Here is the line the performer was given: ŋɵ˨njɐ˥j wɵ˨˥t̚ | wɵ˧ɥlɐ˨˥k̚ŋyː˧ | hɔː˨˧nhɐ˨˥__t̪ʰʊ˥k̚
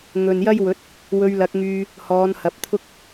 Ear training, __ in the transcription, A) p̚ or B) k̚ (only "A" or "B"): A